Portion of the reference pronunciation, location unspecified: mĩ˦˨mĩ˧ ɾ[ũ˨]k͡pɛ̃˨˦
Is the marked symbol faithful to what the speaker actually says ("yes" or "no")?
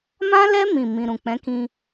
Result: yes